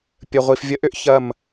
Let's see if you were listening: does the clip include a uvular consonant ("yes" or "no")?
yes